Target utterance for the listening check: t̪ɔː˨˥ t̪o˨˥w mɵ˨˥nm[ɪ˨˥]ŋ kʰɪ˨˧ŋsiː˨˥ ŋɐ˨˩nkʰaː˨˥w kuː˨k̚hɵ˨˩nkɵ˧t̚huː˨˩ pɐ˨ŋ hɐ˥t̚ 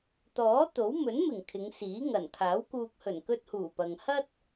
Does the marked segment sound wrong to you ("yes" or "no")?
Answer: yes